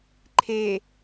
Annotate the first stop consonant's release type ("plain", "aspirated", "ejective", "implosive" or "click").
click